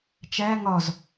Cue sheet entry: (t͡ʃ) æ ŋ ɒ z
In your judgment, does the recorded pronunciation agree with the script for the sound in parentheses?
yes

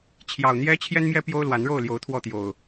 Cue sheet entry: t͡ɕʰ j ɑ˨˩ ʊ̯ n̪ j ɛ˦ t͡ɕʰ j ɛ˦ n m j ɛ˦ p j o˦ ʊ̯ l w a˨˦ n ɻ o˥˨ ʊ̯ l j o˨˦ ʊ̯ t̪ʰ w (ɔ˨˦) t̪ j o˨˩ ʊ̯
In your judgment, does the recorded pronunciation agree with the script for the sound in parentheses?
no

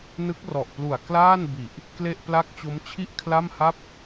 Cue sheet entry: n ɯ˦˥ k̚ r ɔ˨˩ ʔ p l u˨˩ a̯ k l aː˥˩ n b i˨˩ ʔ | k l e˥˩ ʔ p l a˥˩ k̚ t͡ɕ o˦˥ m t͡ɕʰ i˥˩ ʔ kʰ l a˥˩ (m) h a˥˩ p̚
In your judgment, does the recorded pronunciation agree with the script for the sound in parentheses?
yes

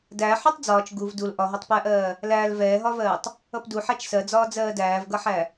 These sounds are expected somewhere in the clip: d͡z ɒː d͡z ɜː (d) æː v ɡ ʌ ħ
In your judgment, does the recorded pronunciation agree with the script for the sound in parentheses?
yes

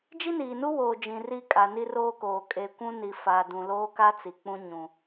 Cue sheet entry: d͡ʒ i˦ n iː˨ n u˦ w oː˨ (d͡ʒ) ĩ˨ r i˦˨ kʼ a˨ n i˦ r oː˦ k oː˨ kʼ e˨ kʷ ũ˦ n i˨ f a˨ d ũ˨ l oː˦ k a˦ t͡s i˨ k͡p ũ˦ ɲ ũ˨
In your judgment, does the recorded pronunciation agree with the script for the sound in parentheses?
yes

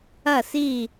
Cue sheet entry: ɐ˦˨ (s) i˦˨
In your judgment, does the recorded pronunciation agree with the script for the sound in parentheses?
yes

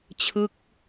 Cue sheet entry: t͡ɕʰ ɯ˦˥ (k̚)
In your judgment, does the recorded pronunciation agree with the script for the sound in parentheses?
yes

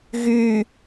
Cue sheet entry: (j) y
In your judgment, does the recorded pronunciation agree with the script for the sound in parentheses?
no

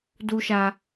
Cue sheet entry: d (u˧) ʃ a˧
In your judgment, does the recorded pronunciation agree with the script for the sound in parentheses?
yes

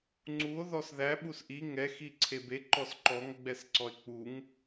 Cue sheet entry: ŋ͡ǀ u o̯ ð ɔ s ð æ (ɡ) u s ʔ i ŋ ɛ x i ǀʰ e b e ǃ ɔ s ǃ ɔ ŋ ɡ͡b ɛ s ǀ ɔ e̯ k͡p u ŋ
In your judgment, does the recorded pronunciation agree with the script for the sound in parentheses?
no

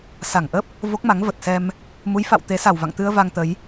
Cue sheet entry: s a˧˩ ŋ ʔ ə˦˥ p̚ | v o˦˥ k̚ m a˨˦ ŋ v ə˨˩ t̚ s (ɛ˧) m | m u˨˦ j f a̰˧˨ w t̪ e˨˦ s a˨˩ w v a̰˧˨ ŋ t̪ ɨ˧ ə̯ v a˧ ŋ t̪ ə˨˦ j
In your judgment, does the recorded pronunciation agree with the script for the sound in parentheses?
yes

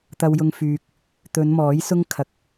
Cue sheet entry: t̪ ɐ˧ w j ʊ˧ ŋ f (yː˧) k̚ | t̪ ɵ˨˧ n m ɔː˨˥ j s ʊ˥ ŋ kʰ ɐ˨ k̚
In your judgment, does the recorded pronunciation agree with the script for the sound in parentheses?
yes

